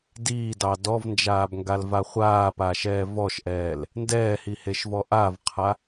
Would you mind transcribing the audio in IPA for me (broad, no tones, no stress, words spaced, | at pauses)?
diːdɑ dɔvnd͡ʒaːbŋɡalva χʷaːpaːʃɛː vɔʃʔɛːl | ndɛːhiheʃvɔ ʔavqʰa